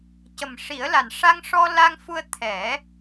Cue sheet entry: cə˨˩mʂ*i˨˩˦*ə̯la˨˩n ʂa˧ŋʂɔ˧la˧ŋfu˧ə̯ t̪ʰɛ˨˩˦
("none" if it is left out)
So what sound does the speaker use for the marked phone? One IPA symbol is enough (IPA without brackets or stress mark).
i˨˩˦